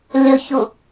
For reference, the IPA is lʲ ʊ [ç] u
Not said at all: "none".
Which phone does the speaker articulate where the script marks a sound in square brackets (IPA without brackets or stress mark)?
ç